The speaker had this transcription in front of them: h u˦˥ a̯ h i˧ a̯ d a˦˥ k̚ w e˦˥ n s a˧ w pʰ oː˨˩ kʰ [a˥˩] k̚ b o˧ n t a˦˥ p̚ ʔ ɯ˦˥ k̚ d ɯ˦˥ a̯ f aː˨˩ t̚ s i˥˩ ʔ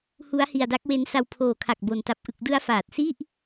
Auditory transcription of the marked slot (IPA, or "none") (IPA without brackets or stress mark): a˨˩